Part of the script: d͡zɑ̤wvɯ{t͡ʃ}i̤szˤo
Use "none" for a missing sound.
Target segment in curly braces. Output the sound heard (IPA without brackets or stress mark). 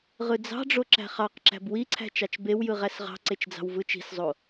t͡ʃ